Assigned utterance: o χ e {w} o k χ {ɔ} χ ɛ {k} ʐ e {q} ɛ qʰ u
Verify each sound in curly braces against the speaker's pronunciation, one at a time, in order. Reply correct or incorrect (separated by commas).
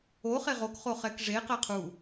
incorrect, incorrect, correct, correct